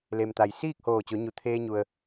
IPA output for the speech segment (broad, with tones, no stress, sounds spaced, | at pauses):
l e˩ m t̪ a˩ j s iː˥˨ k̚ h oː˧˩ t͡ɕ o˩˧ ɲ u˩ t̪ʰ eː˧ ɲ u˩ ə̯